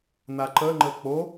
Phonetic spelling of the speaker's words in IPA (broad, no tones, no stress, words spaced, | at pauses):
naǃəŋ͡ǃə k͡po